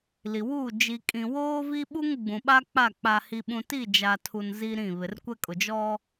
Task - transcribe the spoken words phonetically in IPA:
l i˨ w u˦˨ d͡ʒ i˨ kʼ ĩ˨ w oː˦ v i˦ ɓ u˦ ŋ ɡ͡b ũ˨ ɓ a˦ k͡p a˦˨ k͡p a˦ h i˦ ɓ ũ˦ t i˦˨ d͡ʒ a˨ tʰ u˨ n z i˦ ɾ ĩ˦˨ β ɪ˨ r kʷ ɛ˦ kʼ ʊ˨ d͡ʒ ɔ˦

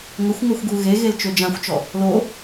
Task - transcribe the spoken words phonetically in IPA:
ŋ ə xʷ ŋ œ xʷ ɡ u ɣ e ɣ e l t͡ʃ ø d͡ʒ ã xʷ t͡ʃ ɔ | l o

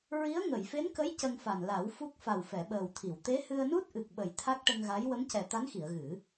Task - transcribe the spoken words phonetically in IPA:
ɹ i˧˥ ə̯ ŋ ə˨˩˨ j f e˧˥ n k ə˧˥ j c ə˧ ŋ f a˨˩ n l a˨˩˦ w f u˦˥ k̚ f a˨˩ w f ɛ˨˩˨ ɓ əː˨˩ w t̪ʰ i˨˩˨ w t̪ e˧˥ h ɨ˧ ə̯ n u˦˥ t̚ ʔ ɨ˨˩ k̚ ɓ ə˨˩ j t̪ʰ a˦˥ k̚ ʈ ə˧ ŋ ɣ a˧˥ j w ə˧˥ m c ɛ˨˩ t̪ a˧˥ n x i˨˩˨ ə̯ ɣ ɨ˨˩˦

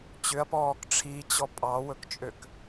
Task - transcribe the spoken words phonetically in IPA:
t͡ɕ ʏ ɐ̯ p ɔː k ʈ͡ʂʰ i t͡ɕ ɔ pʼ ɑ w ɵ k t͡ʃʼ ø k

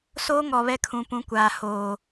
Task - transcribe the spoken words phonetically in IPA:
s oː˦ ŋ ɔ˨ β ɛ˦ kʰ ũ˨˦ p ũ˨˦ kʷ aː˨ h oː˨

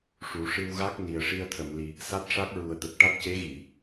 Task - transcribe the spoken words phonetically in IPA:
ʂ u˨˩˦ ʂ ɨ˧ w ɣ a˦˥ k̚ n i˨˩ ə̯ ʂ i˧ ə̯ t̪ʰ ə˨˩˨ m l i˨˩ | s a˦˥ t̚ ʂ a˦˥ k̚ ɹ u˨˩ ə̯ t̪ ə˨˩ k̚ ʈ a˦˥ t̚ c e˧˥ ɣ i˨˩˨

